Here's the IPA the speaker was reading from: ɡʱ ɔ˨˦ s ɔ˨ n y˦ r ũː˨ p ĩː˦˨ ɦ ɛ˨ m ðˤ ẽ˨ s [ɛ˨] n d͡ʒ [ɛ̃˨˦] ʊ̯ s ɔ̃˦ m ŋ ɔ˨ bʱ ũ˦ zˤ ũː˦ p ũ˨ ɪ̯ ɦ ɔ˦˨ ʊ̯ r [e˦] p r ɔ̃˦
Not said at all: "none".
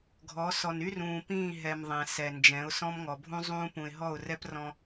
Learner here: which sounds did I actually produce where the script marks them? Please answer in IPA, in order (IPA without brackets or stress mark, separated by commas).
ɛ˨, ɛ̃˨˦, ɛ˦